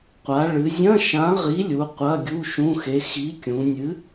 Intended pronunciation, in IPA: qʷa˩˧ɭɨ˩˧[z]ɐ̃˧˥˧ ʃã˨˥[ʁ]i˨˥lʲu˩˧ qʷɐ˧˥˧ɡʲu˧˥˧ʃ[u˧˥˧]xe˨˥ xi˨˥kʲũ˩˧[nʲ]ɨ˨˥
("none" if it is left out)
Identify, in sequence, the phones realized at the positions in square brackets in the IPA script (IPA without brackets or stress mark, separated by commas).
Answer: zʲ, ʁ, ũ˧˥˧, nʲ